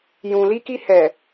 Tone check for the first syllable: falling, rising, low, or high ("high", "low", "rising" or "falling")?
low